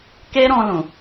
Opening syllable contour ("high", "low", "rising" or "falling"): high